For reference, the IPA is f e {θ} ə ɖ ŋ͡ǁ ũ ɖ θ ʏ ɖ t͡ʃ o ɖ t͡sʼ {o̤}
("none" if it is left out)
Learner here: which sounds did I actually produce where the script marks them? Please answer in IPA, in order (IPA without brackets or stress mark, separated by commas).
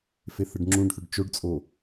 θ, o